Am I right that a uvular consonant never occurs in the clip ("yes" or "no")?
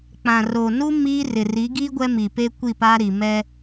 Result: yes